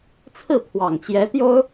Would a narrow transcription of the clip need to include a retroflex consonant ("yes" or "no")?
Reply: no